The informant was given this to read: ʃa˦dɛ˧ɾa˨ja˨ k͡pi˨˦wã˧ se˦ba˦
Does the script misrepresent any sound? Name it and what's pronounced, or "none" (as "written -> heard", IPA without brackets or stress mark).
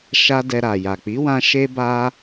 s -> ʃ